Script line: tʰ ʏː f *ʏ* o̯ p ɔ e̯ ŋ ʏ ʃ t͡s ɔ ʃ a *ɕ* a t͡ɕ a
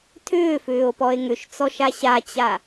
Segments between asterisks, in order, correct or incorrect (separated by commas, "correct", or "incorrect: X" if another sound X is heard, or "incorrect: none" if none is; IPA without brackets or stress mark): incorrect: ʏː, correct